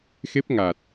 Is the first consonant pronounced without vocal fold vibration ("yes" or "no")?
yes